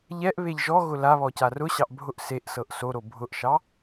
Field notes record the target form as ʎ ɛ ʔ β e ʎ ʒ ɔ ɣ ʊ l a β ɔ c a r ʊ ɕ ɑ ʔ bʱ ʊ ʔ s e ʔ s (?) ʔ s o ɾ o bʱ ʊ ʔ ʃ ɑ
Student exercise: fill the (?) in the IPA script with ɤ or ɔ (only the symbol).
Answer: ɤ